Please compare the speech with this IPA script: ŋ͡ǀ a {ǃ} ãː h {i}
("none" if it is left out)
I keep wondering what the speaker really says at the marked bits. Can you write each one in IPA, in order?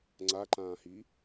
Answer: ǃ, i

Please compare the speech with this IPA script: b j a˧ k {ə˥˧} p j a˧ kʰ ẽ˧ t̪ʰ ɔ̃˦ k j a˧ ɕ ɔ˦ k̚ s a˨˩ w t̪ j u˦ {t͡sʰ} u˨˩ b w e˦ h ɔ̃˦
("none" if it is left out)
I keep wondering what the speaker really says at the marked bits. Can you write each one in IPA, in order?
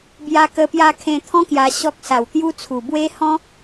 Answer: ə˧, t͡sʰ

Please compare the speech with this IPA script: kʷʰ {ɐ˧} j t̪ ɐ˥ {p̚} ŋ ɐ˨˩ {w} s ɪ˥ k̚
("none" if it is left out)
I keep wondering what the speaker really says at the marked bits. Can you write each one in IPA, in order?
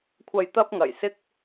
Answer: ɐ˧, p̚, j

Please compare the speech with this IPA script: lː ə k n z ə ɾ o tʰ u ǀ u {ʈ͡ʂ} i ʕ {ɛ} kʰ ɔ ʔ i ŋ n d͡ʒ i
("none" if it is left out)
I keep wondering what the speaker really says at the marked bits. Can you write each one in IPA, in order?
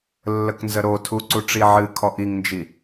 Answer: ʈ͡ʂ, ɨ

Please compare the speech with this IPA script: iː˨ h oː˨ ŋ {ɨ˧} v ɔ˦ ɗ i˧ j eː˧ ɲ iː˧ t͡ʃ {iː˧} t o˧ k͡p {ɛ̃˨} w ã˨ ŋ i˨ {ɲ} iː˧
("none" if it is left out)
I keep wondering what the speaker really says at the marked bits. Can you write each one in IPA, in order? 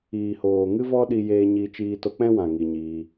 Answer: ɨ˦, iː˧, ɛ̃˦, ɲ

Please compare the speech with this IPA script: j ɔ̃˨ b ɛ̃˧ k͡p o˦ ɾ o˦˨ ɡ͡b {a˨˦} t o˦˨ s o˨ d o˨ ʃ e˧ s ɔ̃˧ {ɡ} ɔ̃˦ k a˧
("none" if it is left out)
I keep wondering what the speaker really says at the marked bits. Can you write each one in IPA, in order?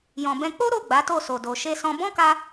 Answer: a˨˦, b

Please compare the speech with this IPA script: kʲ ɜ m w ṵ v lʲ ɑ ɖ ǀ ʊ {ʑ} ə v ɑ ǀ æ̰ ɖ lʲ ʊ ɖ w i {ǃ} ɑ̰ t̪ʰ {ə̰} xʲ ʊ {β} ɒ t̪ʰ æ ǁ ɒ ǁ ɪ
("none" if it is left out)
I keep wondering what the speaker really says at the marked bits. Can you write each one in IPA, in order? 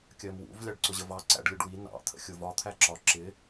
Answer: ʑ, n, ə̰, v

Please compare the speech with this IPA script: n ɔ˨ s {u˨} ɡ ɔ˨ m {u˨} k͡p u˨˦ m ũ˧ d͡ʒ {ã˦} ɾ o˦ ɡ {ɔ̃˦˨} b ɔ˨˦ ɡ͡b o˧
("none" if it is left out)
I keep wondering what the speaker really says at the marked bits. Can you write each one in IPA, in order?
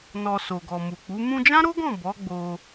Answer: o˨, u˨, ã˦, ɔ̃˦˨

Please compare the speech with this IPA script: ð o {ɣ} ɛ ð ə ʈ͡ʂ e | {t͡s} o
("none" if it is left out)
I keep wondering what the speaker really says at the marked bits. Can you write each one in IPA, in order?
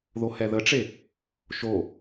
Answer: h, ʃ

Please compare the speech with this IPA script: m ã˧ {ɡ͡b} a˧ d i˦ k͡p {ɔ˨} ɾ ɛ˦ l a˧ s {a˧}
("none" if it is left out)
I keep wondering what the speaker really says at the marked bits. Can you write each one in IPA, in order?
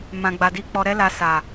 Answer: ɡ͡b, ɔ˧, a˨

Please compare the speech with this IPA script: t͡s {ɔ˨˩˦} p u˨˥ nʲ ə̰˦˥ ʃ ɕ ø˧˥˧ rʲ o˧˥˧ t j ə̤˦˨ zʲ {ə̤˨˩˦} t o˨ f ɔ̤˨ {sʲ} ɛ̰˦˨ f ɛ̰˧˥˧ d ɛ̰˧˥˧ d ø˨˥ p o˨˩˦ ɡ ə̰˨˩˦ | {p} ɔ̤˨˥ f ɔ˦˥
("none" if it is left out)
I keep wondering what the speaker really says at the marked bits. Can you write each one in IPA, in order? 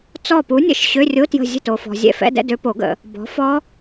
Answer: ɔ˦˨, ə̤˦˨, zʲ, b

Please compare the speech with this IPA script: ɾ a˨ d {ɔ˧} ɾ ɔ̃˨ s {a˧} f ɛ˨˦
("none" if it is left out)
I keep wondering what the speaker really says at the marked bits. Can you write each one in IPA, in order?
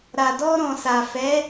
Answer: ɔ˧, a˨

